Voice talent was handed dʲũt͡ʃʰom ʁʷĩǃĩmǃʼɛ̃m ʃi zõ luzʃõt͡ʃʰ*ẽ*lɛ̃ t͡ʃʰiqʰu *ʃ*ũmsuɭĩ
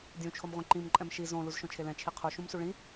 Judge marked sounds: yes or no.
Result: no, yes

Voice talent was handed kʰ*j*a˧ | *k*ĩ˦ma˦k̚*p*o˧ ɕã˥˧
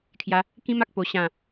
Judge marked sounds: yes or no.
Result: yes, yes, yes

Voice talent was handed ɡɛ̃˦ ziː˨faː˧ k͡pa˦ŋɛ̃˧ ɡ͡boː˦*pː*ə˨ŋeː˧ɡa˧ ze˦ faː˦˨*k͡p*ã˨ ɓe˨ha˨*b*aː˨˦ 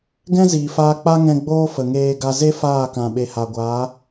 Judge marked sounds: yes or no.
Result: no, no, no

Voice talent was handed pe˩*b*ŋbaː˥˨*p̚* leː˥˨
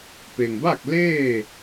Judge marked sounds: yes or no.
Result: no, no

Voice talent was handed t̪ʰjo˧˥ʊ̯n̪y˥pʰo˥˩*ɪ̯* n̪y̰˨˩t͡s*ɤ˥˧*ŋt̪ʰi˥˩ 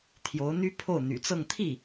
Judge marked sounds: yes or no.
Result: no, yes

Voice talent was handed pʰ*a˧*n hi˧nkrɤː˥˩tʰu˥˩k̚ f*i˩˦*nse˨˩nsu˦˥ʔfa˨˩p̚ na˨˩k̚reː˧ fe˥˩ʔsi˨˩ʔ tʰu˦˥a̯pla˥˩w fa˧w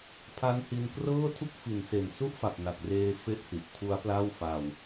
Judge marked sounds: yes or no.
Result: no, yes

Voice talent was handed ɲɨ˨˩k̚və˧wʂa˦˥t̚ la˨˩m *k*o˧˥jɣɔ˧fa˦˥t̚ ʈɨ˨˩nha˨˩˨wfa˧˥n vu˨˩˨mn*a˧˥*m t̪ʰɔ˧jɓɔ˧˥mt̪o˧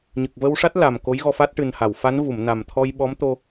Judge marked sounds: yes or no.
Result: yes, no

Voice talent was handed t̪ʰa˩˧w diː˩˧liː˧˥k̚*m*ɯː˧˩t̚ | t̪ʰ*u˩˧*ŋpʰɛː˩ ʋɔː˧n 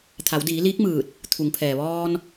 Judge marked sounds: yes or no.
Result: yes, yes

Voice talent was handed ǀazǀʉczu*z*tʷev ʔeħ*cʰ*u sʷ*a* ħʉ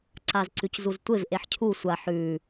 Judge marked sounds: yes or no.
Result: yes, yes, yes

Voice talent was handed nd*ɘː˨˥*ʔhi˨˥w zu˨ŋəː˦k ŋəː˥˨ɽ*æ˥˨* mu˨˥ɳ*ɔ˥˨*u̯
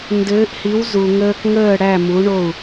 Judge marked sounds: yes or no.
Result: yes, yes, no

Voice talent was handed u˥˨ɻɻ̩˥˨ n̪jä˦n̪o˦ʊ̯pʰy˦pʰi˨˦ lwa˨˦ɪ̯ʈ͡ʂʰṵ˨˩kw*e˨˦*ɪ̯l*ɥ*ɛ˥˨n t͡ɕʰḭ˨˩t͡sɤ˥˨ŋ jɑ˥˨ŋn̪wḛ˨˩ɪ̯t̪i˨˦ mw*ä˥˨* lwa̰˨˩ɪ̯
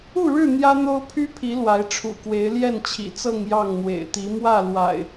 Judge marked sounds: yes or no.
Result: yes, no, yes

